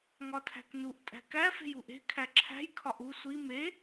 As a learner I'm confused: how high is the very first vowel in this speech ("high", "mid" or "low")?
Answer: low